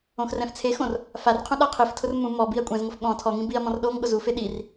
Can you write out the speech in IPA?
õxrɛ̃ft͡sʰexõr | farqʰũ ɗaqʰiftʰʊr mũ mɔ biɐ̯kʷʼɛ̃zŋʊf ɠɔ̃ tʰɔŋĩ biɐ̯mɔ̃r ɗoŋ ɠʊzufe ɗir

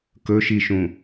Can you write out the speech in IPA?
kɵʃiʃũ

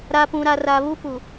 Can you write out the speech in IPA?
ɾa˨pũ˨ɾa˨ ra˨βu˦ pu˨

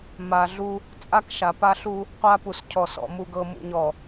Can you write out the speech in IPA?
ma˨ɮu˦ | t͡sʼa˦kʃa˨pa˦ɬu˦ | qʷa˦pu˨scʰɔ˨sɔ̰˨ mu˨ɡɤ˨mṵ˨ ɲɔ˨

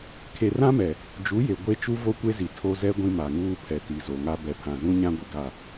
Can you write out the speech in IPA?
kʰe˨rã˦mɛ˨ | d͡ʒu˨˦je˨ ɡʷe˦t͡ʃu˦ vo˦kʷe˦zi˨ tʰo˦zɛ˦ ɡʷĩ˦ma˨ŋuː˦pʰɛ˨ ti˨zo˨ŋa˦ bɛ˨pʰã˨zũ˦ ɲã˦ɡʷɪ˨ɡa˦˨

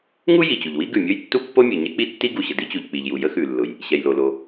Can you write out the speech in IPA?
ŋu˥ ji˩t͡ɕu˩ʎwi˥ ɡʉ˩mʲʊ˥j tːu˥pːo˥mʲʉ˩ ɲɛ˥ k͡pi˥tːi˥ɡu˩ɕə˩ di˥t͡ɕu˩ʎk͡pi˩ʎju˩ jə˥xʉ˩lːʊ˩j | ɕɛ˩jlo˩lo˩

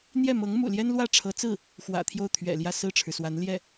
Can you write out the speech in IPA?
n̪jɛ˥˩mɤ˧˥ŋmṵ˨˩ljɛ˥n lwä˥˩ʈ͡ʂʰɤ˧˥t͡sɹ̩˥˩ | xwä̰˨˩t̪ʰjo˥˩ʊ̯ t̪ʰɥɛ̰˨˩ljä˥˧ sɹ̩˥˩ʈ͡ʂʰɻ̩˩ swa˧˥n ljɛ˥˩

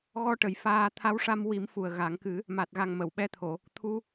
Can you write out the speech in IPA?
ɣɔ˧ʈə˨˩j faː˧ t̪ʰa˧˥wʂa˧m wi˨˩˦m fu˨˩ə̯ ɣa˨˩˦ŋ kɨ˨˩˦ | ma˨˩t̚ɣa˨˩ŋ mə˨˩˨wɓɛ˧t̪ʰo˨˩˨ | t̪ʰu˧

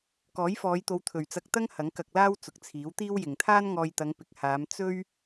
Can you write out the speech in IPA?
kɔː˨˥jfɔː˨˧jt̪o˨˧w t̪ʰɵ˨ɥt͡sɐ˧k̚t̪ɐ˥ŋ hɐ˨˥ŋkɐ˧k̚laː˥w t͡sʊ˨k̚t͡sʰiː˨˥wt̪iː˥wjɪ˨ŋ t̪ʰaː˥nŋɔː˧jt̪ɐ˨˧ŋ pɪ˨k̚ haː˨˧m t͡sɵ˥ɥ

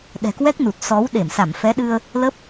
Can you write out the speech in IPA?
ɗɛ̤˨˩kwɛ˦˥k̚nu˨˩t̚ sɔ˨˦w ɗe˧˩msa˧˩mfɛ˨˦ɗɨ˧ə̯ | lə˦˥p̚

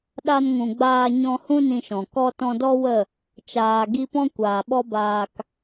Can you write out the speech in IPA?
ɗa˧n ŋũ˨ɡ͡baː˧ ɲɔ̃˧hũ˦ nĩ˧ʃɔ̃˨ kɔ˦ tɔ̃˧dɔ˦wə˦˨ | t͡ʃaː˨ ɡi˧pɔ̃˦kʷaː˨ ɓɔ˦baː˧k

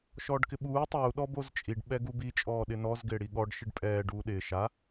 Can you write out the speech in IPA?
ʃɔːɖkɪɓuː tˤuː ɗɔbozt͡ʃʼiɖ ɓɛɡubi t͡ʃʼɔːɗɪnɔz ɡɪːɽiɠɔɖ ʃɪɖpʼɛː ɖuːɗɪː ʃa

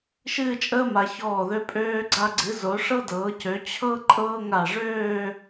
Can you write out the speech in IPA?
ʃɨː˥˧t͡ʃʼəː˥ma˩˧ çɔː˧˩ðø˧ pʼøː˧ ɡ͡ǀa˧ɡ͡ǀɨ˩˧ zo˩˧ʂɤ˥dɤː˩˧cø˩˧ t͡ɕʰɤ˥ ǃʼɤː˥ŋa˧˩ ʐøː˥˧

